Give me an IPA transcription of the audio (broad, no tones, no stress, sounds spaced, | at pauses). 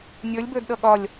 nʲ ə˞ lʲ b ə˞ d ɗ ʌ ɠ ɒ lʲ